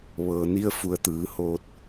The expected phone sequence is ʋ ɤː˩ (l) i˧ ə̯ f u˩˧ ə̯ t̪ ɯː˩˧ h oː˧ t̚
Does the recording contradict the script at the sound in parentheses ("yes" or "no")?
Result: yes